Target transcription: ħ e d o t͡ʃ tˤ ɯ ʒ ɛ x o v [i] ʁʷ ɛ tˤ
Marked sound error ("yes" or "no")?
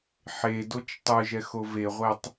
yes